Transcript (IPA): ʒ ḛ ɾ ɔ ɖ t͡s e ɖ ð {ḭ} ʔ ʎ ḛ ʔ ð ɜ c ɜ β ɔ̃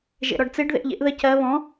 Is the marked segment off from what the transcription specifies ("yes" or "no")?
yes